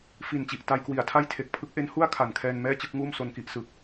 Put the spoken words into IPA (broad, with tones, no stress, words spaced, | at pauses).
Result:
fi˨˩nt͡ɕi˨˩ʔ ta˧jkwi˨˩a̯tʰa˥˩j tʰe˨˩k̚pʰɯ˦˥k̚ʔe˦˥n hu˥˩a̯kʰa˨˩n kʰɛː˧nmɛː˥˩t͡ɕɯ˥˩k̚ŋuː˥˩m so˧nki˦˥ʔsɯ˨˩k̚